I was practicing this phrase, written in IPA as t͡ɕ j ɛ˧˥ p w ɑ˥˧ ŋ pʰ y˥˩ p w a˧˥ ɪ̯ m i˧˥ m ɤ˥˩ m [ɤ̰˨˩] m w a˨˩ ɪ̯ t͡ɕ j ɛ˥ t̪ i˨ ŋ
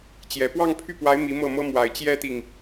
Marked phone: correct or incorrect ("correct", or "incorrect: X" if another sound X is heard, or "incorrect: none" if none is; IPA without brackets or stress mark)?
incorrect: ɤ˥